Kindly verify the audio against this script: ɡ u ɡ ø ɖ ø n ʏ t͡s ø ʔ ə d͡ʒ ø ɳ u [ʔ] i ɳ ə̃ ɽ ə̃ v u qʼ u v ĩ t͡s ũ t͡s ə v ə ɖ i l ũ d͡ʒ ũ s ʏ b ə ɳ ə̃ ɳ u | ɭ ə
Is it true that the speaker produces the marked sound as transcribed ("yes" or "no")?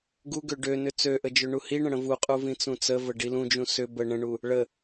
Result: no